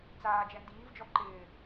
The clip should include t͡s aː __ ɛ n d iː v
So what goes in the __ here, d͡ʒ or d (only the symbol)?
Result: d͡ʒ